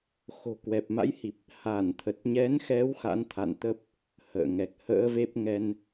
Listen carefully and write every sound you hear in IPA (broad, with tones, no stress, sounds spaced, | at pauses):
x o̤˨˩ k w ɛ˨˩ p̚ m a̰˧˥ j h i˨˩ p̚ | h a˧˩ n t̪ʰ ə˨˩ t̚ ɲ ɛ˨˦ n x ɛ˨˦ w x a̰˧˥ n t̪ʰ a̰˧˨ n t̪ ə˦˥ p̚ | h ə̰ː˧˨ ŋ ɛ˨˩ k̚ h ə̰ː˧˥ v e˦˥ p̚ ŋ ɛ˧ n